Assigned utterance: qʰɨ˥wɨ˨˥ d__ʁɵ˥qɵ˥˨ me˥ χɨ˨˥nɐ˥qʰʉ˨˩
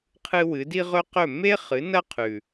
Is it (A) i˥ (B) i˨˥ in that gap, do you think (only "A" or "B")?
A